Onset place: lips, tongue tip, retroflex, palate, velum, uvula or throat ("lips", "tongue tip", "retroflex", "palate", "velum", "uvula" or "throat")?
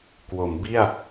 velum